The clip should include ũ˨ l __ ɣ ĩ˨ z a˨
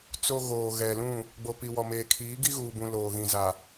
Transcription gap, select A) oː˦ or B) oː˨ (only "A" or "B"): B